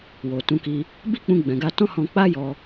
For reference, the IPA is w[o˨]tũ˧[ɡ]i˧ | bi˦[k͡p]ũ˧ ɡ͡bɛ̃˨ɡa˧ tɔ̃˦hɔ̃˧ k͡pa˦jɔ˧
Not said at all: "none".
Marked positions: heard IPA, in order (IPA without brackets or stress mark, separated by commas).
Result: o˨, k, k͡p